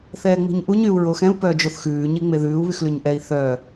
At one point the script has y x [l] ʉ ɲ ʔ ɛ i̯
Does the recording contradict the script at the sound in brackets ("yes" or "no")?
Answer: no